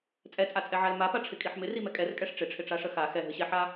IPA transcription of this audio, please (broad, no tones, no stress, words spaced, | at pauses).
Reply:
t͡sʼɛt͡sʼat͡sʼɛʕal mapaʈ͡ʂʰɪkʼiħ mɪrimɛ kʼɛrkʼɛʂ ʈ͡ʂɪʈ͡ʂʰɪʈ͡ʂaʂə xa xɛɦɨɕɛħa